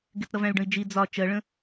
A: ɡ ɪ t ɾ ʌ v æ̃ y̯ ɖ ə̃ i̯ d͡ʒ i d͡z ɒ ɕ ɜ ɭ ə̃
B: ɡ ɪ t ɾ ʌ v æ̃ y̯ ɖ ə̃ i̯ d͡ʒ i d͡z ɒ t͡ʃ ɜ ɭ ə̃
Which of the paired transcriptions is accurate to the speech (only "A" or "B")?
B